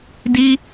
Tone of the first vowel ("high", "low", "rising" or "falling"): high